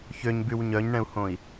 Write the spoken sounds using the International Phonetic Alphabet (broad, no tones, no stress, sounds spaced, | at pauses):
ç ø ɲ b y w ɲ œ ɲ ɳ ɛ̃ u̯ h õ i̯